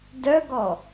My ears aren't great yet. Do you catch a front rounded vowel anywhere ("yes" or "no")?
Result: yes